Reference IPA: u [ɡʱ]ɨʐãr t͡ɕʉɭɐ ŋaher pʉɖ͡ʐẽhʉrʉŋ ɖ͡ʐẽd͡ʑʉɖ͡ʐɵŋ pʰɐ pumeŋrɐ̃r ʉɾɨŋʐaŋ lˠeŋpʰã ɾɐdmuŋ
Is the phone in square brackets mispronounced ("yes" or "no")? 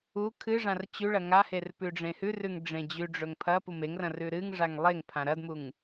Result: yes